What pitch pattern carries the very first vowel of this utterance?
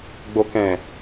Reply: low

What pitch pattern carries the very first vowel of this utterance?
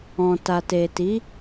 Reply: low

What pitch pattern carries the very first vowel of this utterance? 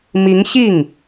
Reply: rising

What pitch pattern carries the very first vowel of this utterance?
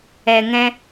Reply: low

